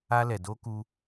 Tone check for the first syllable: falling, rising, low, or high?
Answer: high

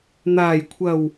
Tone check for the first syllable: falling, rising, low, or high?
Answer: low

